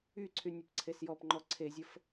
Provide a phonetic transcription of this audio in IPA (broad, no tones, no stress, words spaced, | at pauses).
yǀʰy nʲəpǀʰesjɔpŋ͡ǃɔ ǀʰezʲəf